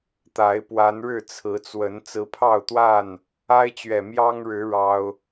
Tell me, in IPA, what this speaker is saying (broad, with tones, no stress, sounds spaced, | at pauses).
t̪ a˨˦ ɪ̯ p w a˨˦ n ɻ ɻ̩˥˨ t͡sʰ ɹ̩˨˦ t͡s w ə˨˦ n t͡s ɹ̩˨˦ pʰ ɑ˥˨ ʊ̯ t̪ w a˥˨ n | a˦ ɪ̯ t͡ɕ ɥ ɛ˨ m j ɑ˦ ŋ ɻ ɻ̩˨˦ ɻ ɑ˦ ʊ̯